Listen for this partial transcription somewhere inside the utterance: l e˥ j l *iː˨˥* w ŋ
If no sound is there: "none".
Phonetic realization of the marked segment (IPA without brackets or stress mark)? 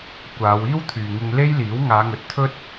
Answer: iː˨˥